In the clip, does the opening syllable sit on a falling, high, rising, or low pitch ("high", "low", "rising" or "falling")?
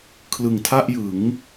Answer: low